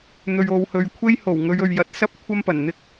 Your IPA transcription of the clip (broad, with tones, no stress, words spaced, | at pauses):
n̪ɵ˨ɥo˨whɵ˨ɥ kʷʰe˥jho˨˩wŋɵ˨˧ɥɵ˨ɥ jɐ˨˥t̚sɐ˥p̚ kʷʰɐ˥mpɐ˨˩nn̪ɪ˥k̚